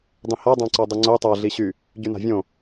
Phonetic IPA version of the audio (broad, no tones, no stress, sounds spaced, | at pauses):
dˤ ĩ h a dˤ ã ǀ ɔ dˤ ɘ ŋ͡ǀ o tˤ a ɮ i ɕ y | ɟ y n a̤ vʲ õ